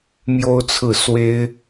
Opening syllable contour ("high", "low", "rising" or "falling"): high